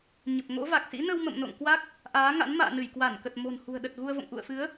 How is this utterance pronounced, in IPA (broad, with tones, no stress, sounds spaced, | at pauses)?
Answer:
ɲ ə˨˩ p̚ ŋ o̰˧˥ v a˨˩ k̚ s ḭ˧˥ n ə˧ w m ə̰˧˨ m n o̰˧˨ ŋ k w a˦˥ k̚ | ʔ aː˨˦ ŋ a̰˧˥ n m a̰ː˧˨ n ɨ˧˩ j k w a˧˩ n k ə˨˩ t̚ m o̤˨˩ n h ṳ˨˩ ə̯ ɗ ə˨˩ t̚ ɣ u˧ ə̯ v o̰˧˨ ŋ ʔ ṵ˧˨ ə̯ f ɨ˨˦ ə̯